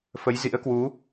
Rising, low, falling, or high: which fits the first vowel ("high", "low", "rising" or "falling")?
rising